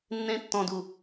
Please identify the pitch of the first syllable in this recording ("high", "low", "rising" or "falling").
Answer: high